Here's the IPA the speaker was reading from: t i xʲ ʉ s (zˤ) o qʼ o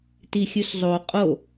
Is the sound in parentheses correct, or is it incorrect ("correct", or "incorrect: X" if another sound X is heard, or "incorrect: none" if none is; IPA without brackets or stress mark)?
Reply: correct